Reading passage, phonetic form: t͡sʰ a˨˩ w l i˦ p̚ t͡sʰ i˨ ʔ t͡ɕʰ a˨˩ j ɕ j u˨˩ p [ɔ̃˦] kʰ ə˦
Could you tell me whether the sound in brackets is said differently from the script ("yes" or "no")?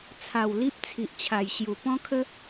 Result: no